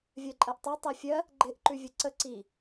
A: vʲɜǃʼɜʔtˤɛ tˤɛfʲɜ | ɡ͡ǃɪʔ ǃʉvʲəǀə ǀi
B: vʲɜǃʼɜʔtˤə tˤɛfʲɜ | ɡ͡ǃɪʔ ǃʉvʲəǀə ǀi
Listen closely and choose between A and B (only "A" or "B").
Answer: A